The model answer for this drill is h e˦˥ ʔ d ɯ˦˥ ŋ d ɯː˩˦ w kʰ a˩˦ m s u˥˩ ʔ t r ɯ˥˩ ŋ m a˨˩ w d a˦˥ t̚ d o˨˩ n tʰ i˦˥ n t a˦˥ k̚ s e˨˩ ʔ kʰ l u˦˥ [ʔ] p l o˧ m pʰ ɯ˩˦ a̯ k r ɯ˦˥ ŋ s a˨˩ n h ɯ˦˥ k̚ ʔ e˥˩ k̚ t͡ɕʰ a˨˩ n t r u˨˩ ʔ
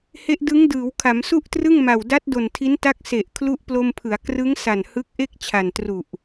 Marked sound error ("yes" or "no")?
no